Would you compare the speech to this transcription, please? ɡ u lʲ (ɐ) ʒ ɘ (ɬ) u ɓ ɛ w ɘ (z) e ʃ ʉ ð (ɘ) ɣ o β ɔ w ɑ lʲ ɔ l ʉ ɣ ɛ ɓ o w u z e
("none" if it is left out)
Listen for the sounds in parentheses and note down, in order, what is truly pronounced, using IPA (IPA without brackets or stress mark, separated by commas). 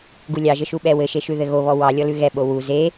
ɑ, ʃ, ʃ, ɘ